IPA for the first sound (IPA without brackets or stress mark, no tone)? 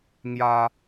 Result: ŋ